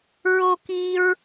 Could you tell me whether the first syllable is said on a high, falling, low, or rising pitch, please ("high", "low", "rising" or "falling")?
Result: high